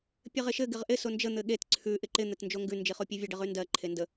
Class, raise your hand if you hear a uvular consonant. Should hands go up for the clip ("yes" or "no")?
yes